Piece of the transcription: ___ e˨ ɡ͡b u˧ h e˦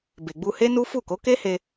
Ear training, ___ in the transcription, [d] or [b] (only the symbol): b